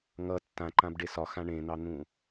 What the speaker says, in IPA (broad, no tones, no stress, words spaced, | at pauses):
ŋʌ tːãǃãbɖe sɒxã ɳẽn̪ɑn̪ũ